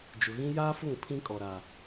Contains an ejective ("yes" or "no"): yes